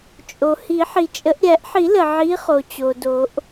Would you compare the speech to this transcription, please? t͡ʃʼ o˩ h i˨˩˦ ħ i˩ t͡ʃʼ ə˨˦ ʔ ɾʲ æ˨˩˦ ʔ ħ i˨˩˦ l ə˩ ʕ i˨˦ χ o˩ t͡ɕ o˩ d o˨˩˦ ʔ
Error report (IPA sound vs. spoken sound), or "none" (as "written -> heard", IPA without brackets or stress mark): none